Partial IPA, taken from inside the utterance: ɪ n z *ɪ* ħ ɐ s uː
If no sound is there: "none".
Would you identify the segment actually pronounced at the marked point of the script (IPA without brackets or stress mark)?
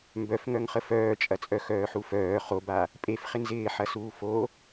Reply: ɪː